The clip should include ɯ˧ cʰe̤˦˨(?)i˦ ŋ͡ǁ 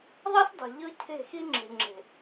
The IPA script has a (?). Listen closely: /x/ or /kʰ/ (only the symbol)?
x